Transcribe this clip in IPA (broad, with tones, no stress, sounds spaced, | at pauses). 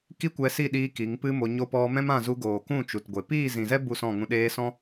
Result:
k i˦ kʷ ɛ˧ s i˦˨ ɗ iː˧ k i˨˦ ŋ p ɨ˦ m o˧ ɲ o˦ p ɔ˧ m ɛ̃˦ m ã˦˨ z u˧ ɡ oː˨ k ũ˦˨ t͡ʃ u˨ t ɡʷ e˨ p iː˦˨ z ĩ˨ z ɛ˦ b u˦˨ s ɔ̃˦˨ ŋ ũ˧ ɗ eː˧ s ɔ̃˦